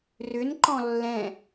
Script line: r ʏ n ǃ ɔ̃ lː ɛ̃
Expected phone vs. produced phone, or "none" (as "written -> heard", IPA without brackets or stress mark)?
none